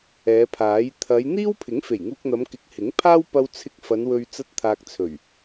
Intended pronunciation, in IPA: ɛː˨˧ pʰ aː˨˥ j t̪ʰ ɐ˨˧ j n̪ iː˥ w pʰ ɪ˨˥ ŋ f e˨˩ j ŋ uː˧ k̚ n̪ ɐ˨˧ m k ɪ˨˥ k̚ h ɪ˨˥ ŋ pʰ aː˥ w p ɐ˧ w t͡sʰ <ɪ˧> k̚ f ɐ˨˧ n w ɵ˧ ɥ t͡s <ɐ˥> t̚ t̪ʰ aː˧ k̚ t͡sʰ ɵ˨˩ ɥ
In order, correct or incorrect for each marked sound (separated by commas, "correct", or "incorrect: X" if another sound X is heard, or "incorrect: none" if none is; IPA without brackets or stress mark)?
correct, correct